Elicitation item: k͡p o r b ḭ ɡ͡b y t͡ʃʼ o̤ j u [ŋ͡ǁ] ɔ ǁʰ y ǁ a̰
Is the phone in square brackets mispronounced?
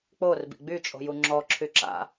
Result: no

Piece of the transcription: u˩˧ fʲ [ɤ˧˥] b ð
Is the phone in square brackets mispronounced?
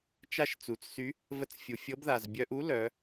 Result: no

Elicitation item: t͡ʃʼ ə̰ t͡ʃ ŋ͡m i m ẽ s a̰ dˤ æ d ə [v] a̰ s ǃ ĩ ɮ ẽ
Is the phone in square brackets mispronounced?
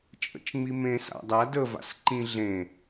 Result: no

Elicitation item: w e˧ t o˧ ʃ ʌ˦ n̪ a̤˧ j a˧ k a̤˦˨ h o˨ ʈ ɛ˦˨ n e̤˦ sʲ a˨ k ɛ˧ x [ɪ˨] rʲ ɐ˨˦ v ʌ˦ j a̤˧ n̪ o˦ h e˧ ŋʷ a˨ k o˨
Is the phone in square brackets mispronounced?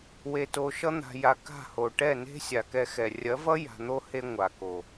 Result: yes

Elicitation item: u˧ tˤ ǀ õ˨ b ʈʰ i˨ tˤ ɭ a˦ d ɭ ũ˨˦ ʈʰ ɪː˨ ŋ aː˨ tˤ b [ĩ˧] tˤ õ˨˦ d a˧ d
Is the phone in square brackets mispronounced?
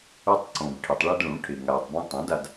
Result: yes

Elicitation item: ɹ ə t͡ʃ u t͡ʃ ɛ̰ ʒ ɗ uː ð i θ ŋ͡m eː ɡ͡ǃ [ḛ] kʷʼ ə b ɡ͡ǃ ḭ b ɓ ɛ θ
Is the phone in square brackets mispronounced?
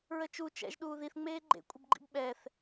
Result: no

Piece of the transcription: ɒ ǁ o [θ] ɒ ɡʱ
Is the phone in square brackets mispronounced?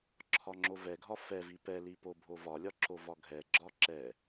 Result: yes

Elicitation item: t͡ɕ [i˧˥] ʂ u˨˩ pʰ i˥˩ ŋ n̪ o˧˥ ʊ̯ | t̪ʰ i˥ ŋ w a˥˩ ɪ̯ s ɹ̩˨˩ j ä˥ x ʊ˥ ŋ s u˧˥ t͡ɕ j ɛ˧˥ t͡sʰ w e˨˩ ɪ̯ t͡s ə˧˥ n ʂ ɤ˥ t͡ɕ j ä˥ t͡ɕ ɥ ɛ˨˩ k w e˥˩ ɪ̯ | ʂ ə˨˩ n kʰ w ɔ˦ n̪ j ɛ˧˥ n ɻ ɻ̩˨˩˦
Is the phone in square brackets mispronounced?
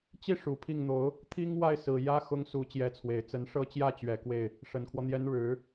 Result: yes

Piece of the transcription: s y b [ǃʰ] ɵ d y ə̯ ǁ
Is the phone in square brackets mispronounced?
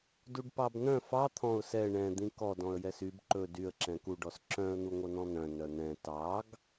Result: yes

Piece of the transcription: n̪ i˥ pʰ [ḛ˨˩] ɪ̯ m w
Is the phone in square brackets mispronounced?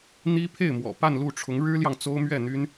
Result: yes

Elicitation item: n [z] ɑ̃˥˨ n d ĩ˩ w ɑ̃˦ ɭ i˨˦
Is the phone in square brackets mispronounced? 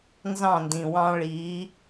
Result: no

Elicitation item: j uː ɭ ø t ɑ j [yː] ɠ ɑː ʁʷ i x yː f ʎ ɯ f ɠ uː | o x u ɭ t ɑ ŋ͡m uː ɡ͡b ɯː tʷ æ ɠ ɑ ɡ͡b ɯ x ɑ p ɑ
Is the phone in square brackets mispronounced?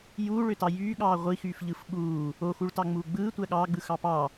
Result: no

